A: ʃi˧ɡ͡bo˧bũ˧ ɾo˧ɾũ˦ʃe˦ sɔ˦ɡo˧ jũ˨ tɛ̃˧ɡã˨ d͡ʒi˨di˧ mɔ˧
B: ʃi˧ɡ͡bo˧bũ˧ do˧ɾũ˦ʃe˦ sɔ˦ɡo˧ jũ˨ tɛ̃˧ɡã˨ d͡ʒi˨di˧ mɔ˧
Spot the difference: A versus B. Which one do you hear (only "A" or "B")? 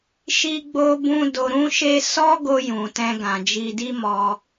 B